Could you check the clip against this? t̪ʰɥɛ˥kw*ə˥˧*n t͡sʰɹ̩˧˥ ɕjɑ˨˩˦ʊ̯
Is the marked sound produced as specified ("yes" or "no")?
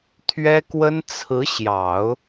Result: no